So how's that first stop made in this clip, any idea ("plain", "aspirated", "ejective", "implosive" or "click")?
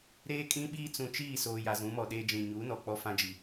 ejective